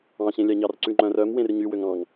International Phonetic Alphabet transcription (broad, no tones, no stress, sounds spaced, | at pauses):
ɑ̃ ɕ ẽ lʲ ɑ ɲ ɑ r ǀ ʉ ŋ͡ǃ œ̃ r œ m w ẽ r ɲ y w ø ŋ ɑ̃ ŋ